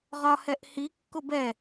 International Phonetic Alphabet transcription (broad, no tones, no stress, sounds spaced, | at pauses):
ʁ ɒ h ɛ ʔ h i kː ʊ b ɛ